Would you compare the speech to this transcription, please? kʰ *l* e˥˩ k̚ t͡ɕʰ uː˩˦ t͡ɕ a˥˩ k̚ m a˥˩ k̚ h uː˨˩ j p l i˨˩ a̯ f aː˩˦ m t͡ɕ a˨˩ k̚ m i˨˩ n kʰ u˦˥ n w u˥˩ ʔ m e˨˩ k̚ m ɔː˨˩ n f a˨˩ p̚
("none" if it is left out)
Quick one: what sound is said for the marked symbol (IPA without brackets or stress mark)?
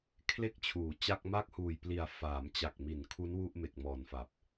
l